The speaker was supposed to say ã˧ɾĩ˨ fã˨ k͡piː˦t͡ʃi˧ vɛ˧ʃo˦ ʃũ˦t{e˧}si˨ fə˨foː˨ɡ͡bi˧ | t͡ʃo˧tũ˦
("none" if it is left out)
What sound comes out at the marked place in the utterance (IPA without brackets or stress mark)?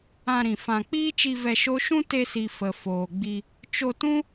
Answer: e˧